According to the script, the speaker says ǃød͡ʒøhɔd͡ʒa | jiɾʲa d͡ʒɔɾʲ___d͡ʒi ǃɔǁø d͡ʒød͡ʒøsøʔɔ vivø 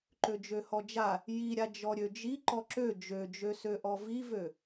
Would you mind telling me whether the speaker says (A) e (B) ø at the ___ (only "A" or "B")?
B